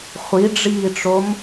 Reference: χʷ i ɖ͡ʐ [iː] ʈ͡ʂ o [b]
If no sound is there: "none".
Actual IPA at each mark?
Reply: iː, m

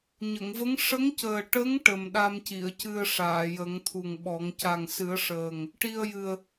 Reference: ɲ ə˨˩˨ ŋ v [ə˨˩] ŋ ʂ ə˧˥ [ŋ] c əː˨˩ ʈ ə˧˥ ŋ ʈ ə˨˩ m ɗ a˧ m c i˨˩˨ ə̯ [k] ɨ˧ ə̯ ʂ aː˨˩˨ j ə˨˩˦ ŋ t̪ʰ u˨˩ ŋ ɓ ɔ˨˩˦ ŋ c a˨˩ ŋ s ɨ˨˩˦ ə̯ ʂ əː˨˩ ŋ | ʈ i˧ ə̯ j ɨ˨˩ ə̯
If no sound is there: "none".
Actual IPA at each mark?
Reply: ə˧˥, ŋ, c

